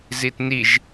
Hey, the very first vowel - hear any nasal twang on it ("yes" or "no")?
no